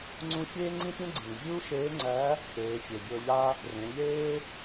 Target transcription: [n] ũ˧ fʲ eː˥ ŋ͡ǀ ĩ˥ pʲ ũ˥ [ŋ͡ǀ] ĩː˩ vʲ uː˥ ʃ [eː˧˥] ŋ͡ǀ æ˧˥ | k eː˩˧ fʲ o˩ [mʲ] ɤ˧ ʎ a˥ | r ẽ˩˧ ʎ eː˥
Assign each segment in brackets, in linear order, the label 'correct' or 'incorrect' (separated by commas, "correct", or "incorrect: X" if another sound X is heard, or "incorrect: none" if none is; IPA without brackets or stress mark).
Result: incorrect: ŋ͡ǀ, incorrect: ɡ͡ǀ, correct, incorrect: bʲ